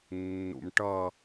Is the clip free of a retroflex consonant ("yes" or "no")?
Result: no